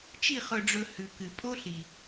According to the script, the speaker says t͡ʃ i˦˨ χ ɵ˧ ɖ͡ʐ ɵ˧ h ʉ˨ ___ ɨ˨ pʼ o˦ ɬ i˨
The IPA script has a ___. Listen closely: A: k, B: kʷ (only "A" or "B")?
A